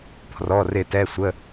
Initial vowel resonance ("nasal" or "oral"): oral